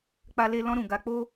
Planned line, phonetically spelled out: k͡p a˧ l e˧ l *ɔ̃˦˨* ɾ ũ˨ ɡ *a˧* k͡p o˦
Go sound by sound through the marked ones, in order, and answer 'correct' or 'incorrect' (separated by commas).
incorrect, correct